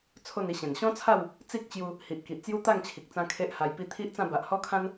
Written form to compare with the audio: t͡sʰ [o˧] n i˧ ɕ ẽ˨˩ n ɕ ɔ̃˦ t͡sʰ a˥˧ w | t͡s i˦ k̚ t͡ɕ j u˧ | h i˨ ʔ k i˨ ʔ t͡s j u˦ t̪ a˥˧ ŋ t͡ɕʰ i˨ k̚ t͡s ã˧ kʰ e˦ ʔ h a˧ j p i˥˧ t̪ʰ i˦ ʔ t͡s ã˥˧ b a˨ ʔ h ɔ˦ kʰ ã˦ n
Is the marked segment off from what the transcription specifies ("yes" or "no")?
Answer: yes